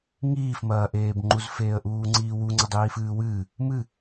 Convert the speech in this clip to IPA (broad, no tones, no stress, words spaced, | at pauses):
ŋiːfmɐːʔeːbŋ͡ǃuz feːə̯ʔuːŋ͡ǀiːwu ŋ͡ǀɐdˤiːfɨːwɨː | mɨ